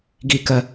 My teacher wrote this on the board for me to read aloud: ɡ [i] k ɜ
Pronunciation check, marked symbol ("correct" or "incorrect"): correct